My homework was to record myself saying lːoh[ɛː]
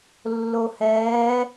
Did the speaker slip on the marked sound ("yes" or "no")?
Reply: no